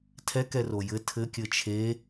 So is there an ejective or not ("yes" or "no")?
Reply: no